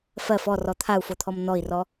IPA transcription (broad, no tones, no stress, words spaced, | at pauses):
fɜf ɔ rɔt̪ʰau̯fot̪ʰɔm n̪ɔi̯rɔ